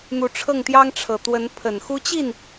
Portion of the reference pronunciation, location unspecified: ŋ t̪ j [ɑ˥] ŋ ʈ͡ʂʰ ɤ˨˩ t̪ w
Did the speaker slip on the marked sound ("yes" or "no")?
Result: no